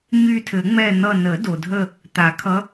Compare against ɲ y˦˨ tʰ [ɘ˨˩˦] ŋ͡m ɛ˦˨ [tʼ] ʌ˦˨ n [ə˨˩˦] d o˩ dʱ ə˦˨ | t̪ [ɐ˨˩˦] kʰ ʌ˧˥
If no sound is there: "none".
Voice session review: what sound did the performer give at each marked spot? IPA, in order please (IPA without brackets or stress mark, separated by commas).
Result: ɘ˨˩˦, n̪, ə˨˩˦, a˨˩˦